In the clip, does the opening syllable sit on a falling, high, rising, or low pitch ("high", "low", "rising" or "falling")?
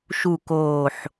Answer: low